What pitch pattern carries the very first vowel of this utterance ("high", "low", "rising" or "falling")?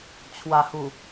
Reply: low